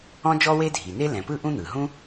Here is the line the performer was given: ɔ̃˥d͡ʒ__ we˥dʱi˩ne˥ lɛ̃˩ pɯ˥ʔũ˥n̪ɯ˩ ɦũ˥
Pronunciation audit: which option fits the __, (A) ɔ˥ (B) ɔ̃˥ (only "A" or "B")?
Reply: A